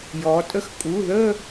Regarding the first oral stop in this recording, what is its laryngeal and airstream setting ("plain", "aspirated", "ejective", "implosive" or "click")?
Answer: ejective